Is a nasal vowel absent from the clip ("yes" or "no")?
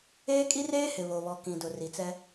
no